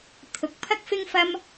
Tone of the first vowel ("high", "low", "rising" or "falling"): low